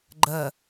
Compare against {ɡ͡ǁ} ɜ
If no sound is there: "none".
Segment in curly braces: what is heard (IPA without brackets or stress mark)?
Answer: ɡ͡ǃ